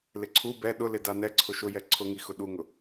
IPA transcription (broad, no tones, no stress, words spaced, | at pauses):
lɪǀʰu bɛ ɗʊlɪ danɛ ǀʰʊʃʊjɛ ǀʰʊ ŋixʊɗuŋʊ